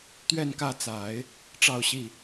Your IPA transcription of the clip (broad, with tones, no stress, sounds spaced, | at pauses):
t̪ ɥ ɛ˥˧ n k ä˥˩ t͡s a˨˩˦ ɪ̯ | ʈ͡ʂ ɑ˥˧ ʊ̯ ɕ i˥˩